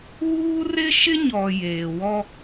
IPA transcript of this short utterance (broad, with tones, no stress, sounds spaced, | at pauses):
w uː˦ r ɪ˦ ʃ ɪ˦ ɲ ɔ˨ j eː˨ w ɔ˦